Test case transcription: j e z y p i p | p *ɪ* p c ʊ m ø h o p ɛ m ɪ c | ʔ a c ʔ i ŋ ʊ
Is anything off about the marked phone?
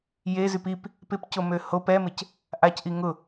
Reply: no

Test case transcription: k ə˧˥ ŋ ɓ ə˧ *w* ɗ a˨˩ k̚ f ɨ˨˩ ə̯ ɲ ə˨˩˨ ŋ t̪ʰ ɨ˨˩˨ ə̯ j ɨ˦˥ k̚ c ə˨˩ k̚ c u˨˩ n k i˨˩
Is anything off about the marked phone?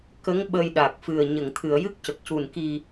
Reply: yes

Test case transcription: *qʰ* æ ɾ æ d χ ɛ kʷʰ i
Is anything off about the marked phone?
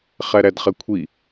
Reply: yes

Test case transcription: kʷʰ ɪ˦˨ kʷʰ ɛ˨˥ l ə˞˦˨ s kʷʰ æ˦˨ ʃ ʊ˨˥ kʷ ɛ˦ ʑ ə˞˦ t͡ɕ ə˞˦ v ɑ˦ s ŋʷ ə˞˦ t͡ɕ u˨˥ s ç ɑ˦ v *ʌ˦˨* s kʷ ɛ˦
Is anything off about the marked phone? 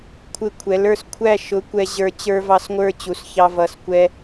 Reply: no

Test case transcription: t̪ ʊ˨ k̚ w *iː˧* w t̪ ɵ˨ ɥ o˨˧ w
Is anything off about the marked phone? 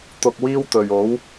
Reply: no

